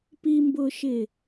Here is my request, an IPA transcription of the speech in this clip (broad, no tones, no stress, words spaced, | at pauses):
pimbʊːʃɪː